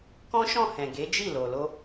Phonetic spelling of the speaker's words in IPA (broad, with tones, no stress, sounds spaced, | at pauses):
k ɔ̃˦ ʃ ɔ̃˦˨ h ɛ̃˨ ɡ e˨˦ d͡ʒ i˦˨ l o˨ l o˧